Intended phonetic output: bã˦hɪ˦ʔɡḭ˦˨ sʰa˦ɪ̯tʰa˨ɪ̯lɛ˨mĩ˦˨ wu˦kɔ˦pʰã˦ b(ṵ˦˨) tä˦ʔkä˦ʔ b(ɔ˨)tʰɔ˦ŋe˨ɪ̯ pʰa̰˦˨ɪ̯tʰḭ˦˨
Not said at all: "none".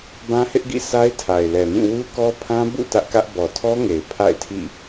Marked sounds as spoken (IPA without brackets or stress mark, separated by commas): ṵ˦˨, ɔ˨